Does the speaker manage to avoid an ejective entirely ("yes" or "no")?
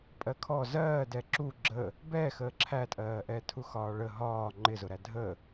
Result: no